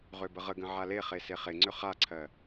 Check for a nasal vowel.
present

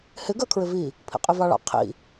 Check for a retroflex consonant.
present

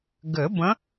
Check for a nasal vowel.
present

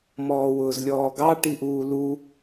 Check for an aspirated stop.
absent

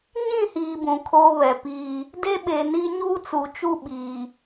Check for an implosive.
present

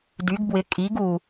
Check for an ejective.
present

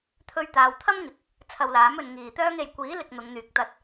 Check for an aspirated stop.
present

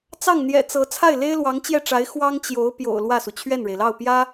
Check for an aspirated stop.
present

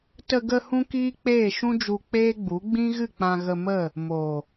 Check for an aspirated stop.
absent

